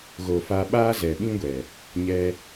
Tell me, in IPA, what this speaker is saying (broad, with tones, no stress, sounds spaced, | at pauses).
ɣ o˨ f a˧ ɓ aː˦ z ɛ˨ ɓ ĩ˦ ɡʷ ɛ˨ | ɲ ɛ˧